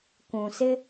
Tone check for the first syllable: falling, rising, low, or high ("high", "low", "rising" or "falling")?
low